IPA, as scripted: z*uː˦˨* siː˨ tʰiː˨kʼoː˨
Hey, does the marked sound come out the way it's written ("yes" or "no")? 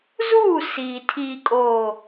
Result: yes